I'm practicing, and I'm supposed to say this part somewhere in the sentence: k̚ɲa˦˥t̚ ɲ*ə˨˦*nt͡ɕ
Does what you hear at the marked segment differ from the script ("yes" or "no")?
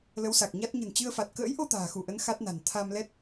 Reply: yes